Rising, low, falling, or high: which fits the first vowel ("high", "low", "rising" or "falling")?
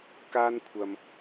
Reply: high